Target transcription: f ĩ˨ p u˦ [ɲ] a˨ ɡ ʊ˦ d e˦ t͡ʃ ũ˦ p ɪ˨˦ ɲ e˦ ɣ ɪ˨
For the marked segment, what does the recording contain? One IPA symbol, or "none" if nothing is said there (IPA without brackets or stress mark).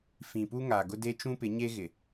ŋ